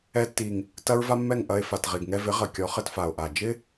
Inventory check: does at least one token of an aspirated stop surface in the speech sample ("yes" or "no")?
no